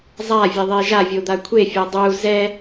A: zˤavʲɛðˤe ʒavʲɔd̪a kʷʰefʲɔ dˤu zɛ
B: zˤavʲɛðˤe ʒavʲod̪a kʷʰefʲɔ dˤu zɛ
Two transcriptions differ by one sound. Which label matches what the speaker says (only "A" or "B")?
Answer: B